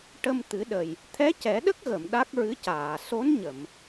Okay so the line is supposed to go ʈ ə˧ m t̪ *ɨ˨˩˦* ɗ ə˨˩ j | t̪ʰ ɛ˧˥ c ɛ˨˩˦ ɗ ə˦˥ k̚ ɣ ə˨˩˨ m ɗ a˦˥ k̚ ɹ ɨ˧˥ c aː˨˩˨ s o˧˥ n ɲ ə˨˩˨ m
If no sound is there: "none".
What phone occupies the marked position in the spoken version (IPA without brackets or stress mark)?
ɨ˨˩˦